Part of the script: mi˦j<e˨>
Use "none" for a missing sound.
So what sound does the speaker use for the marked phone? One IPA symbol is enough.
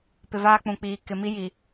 i˨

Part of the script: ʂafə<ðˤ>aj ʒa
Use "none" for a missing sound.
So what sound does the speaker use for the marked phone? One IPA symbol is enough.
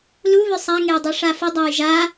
dˤ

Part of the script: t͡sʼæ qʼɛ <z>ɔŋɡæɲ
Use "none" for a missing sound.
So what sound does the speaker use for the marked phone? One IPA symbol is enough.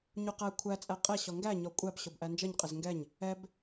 ɕ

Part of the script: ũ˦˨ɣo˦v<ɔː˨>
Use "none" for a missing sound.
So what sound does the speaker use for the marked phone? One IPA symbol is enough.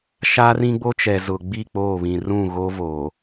oː˨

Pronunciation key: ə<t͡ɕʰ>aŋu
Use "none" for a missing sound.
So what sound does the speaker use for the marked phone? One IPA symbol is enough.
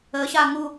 ɕ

